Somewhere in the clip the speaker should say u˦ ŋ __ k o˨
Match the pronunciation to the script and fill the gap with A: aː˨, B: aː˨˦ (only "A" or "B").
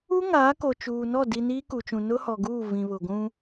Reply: B